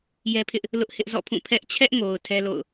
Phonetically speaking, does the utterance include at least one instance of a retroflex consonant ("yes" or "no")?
no